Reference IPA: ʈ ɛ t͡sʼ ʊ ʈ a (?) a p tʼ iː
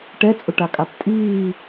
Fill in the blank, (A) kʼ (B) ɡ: A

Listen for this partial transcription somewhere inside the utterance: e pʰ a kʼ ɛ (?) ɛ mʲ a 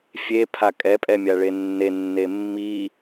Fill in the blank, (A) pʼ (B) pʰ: A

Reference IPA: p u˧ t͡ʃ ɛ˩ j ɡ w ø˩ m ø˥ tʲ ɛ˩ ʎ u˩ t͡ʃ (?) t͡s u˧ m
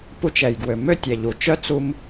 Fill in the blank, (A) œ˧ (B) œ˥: B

